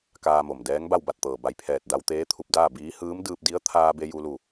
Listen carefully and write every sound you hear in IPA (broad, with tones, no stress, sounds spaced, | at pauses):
k aː˧ m o˩ m d ɛː˧˥ ŋ b a˥˨ w b a˥˨ t̚ t̪ ɤː˩ b a˧˩ j pʰ ɛː˧˩ t̚ d a˧ w t̪ eː˧˥ t̪ʰ u˧ p̚ d aː˥˨ b iː˧˥ h ɯː˧˥ m d ɯː˧ p̚ d i˧˥ ə̯ t̪ʰ aː˧ b e˧ j u˧ l u˧˩